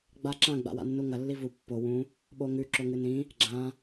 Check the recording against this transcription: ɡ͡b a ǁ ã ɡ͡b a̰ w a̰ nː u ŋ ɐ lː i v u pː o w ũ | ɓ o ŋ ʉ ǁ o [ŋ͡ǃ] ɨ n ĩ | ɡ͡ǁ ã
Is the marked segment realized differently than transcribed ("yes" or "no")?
yes